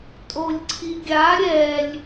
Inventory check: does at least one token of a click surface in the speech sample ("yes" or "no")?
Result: yes